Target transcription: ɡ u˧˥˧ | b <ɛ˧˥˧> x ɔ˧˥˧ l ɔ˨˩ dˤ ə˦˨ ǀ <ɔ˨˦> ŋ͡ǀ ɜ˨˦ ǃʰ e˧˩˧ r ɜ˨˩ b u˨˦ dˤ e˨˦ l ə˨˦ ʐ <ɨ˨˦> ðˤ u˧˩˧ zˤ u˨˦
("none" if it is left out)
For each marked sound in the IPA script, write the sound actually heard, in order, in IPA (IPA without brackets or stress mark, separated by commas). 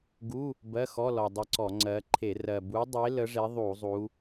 ɜ˧˥˧, ɔ˧˩˧, e˨˦